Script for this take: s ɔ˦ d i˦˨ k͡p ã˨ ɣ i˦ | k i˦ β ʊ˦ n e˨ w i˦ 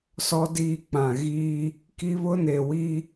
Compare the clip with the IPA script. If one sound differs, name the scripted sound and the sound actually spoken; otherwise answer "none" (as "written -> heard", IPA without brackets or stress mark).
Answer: none